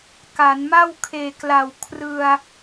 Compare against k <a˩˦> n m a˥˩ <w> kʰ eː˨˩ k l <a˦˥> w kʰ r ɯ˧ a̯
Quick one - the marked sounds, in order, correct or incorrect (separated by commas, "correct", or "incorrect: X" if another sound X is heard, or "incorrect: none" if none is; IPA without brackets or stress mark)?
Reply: correct, correct, incorrect: a˨˩